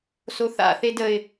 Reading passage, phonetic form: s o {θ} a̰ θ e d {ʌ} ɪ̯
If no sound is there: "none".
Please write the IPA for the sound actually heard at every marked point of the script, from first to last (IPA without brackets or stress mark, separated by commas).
θ, ə